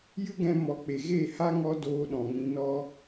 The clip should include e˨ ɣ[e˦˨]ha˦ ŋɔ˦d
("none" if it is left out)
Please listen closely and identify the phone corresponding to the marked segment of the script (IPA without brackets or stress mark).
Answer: e˦˨